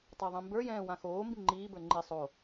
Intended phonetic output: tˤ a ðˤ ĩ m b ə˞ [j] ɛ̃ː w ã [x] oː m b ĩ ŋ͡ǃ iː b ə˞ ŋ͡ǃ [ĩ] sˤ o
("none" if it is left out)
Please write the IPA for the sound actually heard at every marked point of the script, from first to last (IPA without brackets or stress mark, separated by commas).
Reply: j, x, i